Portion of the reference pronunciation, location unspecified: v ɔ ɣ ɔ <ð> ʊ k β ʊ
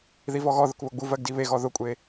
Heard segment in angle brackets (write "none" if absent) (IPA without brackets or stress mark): ð